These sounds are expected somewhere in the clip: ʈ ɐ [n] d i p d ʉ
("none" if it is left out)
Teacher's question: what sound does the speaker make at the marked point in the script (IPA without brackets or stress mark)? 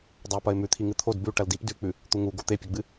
l